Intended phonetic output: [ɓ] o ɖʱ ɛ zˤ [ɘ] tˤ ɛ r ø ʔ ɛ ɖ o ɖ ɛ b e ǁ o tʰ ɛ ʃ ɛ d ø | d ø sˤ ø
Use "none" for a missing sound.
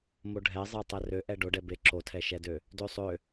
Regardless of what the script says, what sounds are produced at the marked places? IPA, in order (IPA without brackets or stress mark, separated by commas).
m, e